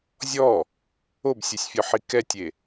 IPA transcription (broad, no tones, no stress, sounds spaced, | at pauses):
zʲ ɔ | o b sʲ œ sʲ fʲ ɔ ħ i k ɛ tʲ e